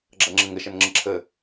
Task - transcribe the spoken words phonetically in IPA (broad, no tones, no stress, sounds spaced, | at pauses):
ɡ͡ǁ ʌ ŋ͡ǁ ə ŋ ə ʃ ʌ n ŋ͡ǁ ə ǁʰ ə